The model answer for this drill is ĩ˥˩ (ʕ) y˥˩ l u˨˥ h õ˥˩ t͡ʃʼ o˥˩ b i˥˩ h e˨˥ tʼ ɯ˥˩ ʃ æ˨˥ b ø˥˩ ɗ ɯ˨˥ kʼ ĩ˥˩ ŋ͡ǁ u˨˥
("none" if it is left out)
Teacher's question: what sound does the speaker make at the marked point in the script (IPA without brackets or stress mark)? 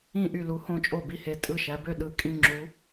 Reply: ʔ